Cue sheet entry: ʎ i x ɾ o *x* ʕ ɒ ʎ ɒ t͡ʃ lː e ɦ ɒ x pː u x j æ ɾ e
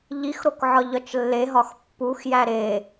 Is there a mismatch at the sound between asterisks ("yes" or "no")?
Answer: yes